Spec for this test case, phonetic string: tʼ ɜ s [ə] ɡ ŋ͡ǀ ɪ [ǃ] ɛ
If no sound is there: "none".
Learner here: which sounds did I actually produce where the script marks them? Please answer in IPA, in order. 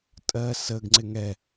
ə, ŋ

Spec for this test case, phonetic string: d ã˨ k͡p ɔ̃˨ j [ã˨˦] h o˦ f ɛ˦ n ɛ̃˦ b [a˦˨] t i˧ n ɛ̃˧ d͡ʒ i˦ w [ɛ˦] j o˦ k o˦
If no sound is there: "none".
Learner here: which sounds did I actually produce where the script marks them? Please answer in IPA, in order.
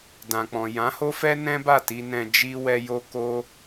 ã˨˦, a˦˨, ɛ˦

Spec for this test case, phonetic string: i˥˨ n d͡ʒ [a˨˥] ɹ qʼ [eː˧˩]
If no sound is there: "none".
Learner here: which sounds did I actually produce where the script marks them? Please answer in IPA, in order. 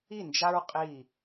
a˦, iː˧˩

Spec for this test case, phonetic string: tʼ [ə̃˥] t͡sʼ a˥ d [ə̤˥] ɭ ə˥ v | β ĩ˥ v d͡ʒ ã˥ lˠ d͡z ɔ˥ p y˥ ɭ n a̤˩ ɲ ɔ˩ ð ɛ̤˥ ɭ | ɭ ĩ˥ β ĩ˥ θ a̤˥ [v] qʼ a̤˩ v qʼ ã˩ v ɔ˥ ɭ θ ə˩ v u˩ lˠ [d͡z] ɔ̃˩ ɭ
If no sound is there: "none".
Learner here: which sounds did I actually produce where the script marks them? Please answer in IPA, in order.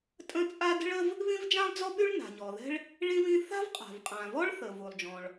ə̃˥, ə̤˥, v, d͡ʒ

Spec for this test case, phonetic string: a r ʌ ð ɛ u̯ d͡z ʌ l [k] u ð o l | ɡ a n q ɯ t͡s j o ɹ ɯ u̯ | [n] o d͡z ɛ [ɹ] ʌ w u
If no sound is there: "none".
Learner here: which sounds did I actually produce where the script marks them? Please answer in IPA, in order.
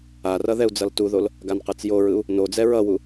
t, n, ɹ

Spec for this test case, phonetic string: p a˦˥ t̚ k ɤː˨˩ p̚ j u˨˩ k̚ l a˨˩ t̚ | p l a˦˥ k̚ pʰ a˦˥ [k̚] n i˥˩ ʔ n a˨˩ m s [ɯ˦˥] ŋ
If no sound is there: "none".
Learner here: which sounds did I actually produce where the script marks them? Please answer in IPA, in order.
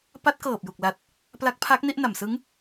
k̚, ɯ˦˥

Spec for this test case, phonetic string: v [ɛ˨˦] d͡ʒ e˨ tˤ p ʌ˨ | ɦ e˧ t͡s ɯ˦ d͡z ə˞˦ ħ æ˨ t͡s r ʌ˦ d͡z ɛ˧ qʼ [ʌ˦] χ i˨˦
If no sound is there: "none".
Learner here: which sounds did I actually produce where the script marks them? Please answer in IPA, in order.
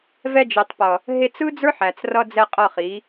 ɛ˧, ʌ˦˨

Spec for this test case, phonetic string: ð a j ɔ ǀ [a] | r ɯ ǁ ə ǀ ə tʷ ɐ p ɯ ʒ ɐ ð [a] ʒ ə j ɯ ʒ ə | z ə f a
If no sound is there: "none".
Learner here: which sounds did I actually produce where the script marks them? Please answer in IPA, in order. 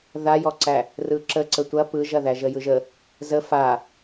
æ, æ

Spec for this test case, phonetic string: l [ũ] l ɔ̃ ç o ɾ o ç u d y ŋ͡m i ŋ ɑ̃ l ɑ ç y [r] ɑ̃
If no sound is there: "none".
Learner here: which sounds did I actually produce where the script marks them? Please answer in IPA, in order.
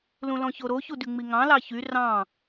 ũ, r

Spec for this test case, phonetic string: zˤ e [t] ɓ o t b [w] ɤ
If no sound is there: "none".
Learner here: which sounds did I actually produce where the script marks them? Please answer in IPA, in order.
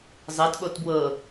t, w

